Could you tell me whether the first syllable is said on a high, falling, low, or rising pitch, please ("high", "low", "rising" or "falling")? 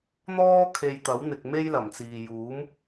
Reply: high